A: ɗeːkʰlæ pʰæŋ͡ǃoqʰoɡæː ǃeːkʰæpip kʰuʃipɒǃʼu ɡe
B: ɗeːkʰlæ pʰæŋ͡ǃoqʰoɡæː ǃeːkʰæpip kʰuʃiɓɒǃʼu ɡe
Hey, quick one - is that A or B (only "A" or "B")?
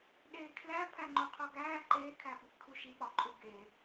B